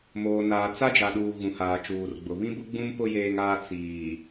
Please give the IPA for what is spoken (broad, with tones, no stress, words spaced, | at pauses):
moː˨naː˨ t͡sa˦d͡ʒa˨ɗuː˨ ɣũ˨haː˨t͡ʃuː˨rɡ͡bʊ˨ βĩ˦bʊ˦ ɡ͡bũ˦mpʊ˦ jeː˦ŋaː˦ t͡siː˨